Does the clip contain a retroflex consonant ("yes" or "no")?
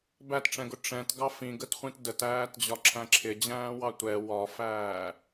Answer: yes